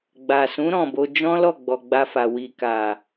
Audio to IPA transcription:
ɡ͡ba˨sũ˨˦ ɾɔ̃˦˨bo˧ d͡ʒɔ̃˦lɔ˦˨ɡ͡bɔ˨ ɡ͡ba˧fa˨ wi˨ka˨

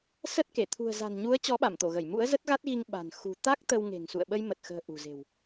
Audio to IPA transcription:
sə˦˥t̚ke˧˩ t̪ʰṳ˨˩ə̯za̤˨˩nɲu˨˦ə̯ t͡ɕɔ˨˦ɓa˧˩mt̪o˧˩ɣə˧˩j mṵ˧˥ə̯zə˦˥t̚ɣa˦˥t̚ɣi˧ŋ ɓa̤˨˩n xṳ˨˩ t̪a˦˥k̚ t̪ə˧w ŋe̤˨˩ŋsṵ˧˨ə̯ɓə˧j mə˨˩t̚xə̤ː˨˩ ʔṳ˨˩ze̤˨˩w

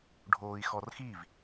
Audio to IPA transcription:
ɖʱoːi̯xɔrxiv

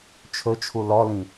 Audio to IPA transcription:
t͡ʃʰɵt͡ʃʰu lɔlĩ

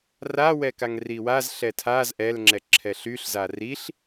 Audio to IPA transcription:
rawɛ kaŋriwaz ɬɛtʰaz ʔɛlŋ͡ǁɛ ǁʰɛɬyɬza riɬ

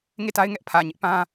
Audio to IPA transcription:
ŋe˦˨ta˦ɪ̯ŋɛ˦ʔpʰä˨ ɲɪ˦ʔpã˦

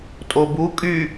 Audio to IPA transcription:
tʼobu kʼy

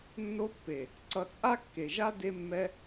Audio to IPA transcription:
nːo˧pːe˨ | ǀʌ˧t͡sʼa˦ kːe˨ʒa˦ de˧mːɛ˧

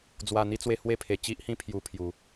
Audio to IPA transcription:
d͡zwa˨˩n̪i˧t͡swe˧ hwe˦pʰe˨˩ t͡ɕi˦ʔhĩ˦ pʰju˧pʰju˨˩

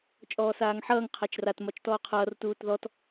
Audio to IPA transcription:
t͡ʃʼɔːsaːŋħʌːŋ qʰat͡ʃrat mɒt͡ʃtɔːqʰʌːr tuːtðɔt

